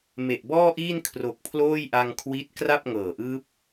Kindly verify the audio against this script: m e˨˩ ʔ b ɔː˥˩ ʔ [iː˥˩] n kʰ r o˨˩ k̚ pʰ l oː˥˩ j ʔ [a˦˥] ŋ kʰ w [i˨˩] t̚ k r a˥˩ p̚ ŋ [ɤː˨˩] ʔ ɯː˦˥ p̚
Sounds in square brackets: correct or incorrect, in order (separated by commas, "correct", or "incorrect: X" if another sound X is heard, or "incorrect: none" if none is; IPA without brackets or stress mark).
correct, incorrect: a˧, incorrect: i˦˥, correct